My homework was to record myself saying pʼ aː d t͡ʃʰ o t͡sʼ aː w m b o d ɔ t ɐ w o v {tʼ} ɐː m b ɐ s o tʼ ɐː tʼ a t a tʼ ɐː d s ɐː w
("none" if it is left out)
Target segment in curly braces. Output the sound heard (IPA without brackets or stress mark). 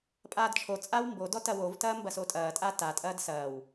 t